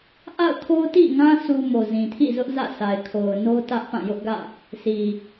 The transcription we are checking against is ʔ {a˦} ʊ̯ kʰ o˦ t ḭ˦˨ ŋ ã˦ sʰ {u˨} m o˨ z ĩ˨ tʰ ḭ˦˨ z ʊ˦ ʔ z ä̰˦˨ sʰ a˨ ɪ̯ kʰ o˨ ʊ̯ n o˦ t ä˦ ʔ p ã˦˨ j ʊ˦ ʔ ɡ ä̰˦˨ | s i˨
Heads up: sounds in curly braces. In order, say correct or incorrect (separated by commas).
incorrect, incorrect